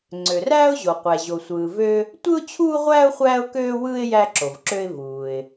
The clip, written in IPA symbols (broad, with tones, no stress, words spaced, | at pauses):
ŋ͡ǀø˩ræː˥ʊ̯ʑo˩qʷæ˩ ʑo˩sʷɯː˩vø˥ | tʷɯ˥ʊ̯t͡ɕʰuː˥ʁʷæː˥ʊ̯ χʷæː˥ʊ̯køː˥wɯː˥ɪ̯ jæ˥ǁo˩vǁø˥ɪ̯ vuː˩ɪ̯